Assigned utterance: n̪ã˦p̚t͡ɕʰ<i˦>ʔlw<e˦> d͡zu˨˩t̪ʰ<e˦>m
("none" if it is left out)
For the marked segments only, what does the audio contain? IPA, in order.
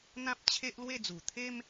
e˦, e˥˧, e˦

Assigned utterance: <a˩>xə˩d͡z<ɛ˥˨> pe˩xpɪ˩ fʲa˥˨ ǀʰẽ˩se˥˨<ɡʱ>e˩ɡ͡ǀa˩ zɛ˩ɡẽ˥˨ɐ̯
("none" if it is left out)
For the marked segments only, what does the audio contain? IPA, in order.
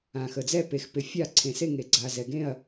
ã˩, ɛ˥˨, ŋ

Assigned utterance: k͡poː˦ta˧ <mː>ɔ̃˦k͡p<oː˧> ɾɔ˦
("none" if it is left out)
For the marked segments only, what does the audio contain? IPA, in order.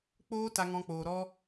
ŋ, oː˧

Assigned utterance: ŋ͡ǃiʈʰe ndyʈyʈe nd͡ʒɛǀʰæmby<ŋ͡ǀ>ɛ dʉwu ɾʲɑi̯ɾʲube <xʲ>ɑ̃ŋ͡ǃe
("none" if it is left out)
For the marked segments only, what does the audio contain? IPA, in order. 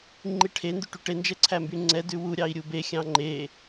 ŋ͡ǀ, xʲ

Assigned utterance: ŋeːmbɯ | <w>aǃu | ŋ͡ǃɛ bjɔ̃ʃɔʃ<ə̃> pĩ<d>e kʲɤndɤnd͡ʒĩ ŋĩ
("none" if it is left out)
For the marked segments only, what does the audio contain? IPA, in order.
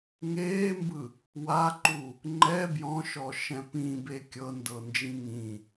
w, ɛ̃, b

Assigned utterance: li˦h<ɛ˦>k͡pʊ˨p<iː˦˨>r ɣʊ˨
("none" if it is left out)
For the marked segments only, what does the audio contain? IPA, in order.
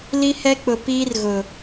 ɛ˦, iː˦

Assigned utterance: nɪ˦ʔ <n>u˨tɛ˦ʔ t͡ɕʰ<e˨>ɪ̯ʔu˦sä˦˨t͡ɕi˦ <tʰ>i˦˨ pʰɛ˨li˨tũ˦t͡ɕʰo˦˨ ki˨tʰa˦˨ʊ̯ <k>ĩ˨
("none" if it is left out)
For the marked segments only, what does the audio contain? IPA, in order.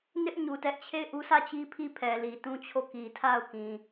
ɲ, e˦˨, pʰ, k

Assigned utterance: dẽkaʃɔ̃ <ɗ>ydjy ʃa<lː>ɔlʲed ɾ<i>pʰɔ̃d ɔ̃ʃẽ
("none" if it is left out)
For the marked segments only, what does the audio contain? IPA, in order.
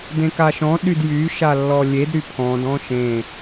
ɗ, lː, y

